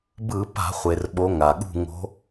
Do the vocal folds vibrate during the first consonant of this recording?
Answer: yes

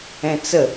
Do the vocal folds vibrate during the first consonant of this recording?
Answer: no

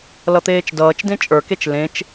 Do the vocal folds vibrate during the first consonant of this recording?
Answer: yes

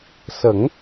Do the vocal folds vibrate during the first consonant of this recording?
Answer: no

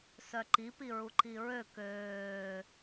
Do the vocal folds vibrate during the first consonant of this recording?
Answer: no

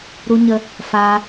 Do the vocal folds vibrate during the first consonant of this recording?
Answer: yes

